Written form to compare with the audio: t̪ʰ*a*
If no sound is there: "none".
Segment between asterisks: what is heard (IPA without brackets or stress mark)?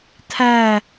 æ